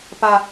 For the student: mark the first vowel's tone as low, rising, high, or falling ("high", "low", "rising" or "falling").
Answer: low